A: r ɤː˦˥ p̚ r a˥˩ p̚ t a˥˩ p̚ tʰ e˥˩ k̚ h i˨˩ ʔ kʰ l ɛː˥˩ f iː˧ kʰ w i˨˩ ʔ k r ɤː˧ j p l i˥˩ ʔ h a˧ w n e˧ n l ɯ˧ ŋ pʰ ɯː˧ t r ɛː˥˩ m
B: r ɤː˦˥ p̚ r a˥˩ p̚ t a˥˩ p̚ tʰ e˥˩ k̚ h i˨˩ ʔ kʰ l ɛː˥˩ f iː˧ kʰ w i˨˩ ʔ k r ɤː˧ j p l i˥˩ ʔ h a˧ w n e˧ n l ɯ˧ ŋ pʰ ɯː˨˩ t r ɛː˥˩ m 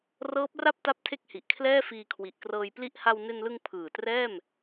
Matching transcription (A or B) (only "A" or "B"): B